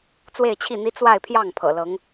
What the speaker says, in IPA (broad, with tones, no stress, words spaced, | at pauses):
t͡swe˥˧ɪ̯t͡ɕʰi˥˩n̪i˥ t͡swa˥˧ɪ̯pʰjɑ˥˩ŋ pʰɤ̰˨˩lɤ˧˥ŋ